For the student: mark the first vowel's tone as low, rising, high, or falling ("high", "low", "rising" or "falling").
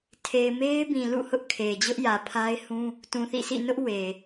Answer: low